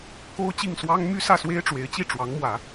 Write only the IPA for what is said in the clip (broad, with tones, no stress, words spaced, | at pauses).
ko˥ʊ̯t͡ɕi˥˩ŋ swɑ˥ŋ my˥sä˥˩swe˥ɪ̯ ʈ͡ʂwe˧˥ɪ̯t͡ɕi˥˩ʈ͡ʂwɑ˧˥ŋmwä˨˩˦